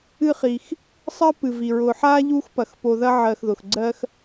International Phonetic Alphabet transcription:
ɨ˦ χ i˩ x | sˤ ɜ˥ p ɨ˩ v i˩ ɹ ʊ˨ ħ a˥ ʎ u˦ x p ɐ˩ x p o˨ ð ɐ˦ ʕ ɜ˨ x ð ʊ˩ x ɡ͡ǀ ɜ˦ x

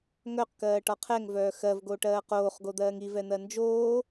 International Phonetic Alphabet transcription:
ŋ œ q k ɜː ʈ ɒ qʰ ɛ ŋ v œː x ɜ v ɡ oː ʈ ɜː q oː χ ɡ o d̪ ɜː ŋ i v ɛ n̪ ɜ n d͡ʒ oː

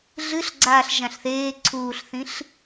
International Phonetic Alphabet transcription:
ɮ ɨ ɬ ɡ͡ǀ aː ɬ ʒ ã ɬ θ eː ǀʰ uː ɬ θ ĩ ɬ

